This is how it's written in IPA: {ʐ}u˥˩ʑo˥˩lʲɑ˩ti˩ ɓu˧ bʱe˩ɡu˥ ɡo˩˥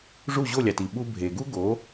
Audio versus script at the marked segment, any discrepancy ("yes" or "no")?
no